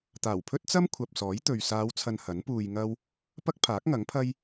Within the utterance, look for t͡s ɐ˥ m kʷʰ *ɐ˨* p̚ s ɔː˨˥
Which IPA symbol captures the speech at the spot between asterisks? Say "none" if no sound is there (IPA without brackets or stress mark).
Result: ɐ˨